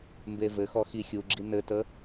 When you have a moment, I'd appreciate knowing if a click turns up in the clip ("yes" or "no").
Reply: yes